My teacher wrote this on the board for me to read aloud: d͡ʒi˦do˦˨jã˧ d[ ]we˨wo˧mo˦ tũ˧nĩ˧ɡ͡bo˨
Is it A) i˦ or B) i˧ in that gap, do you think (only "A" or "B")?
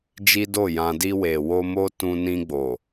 B